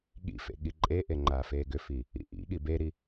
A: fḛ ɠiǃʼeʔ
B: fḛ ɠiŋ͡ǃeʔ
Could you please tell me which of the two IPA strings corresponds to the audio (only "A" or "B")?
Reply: A